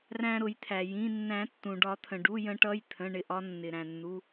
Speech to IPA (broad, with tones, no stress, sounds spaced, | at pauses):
r æ̃˧ ɾ ʊ˨˩˦ j t̪ʰ æ˩ j ĩ˩˧˩ nː æ̃˨˩˦ tː ũ˩ ɖ ɒ˨˩˦ t̪ʰ ə̃˩ ɖ u˩˧˩ j ə̃˨˩˦ ʈ ʌ˩˧˩ j t̪ʰ ə̃˩˧˩ ɳ ɪ˩˧˩ ʔ ɒ˧ nː ɪ˩ ɾ æ̃˩ nː u˩˧˩